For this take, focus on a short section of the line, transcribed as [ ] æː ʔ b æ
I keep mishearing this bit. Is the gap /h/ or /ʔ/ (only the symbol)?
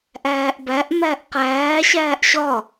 ʔ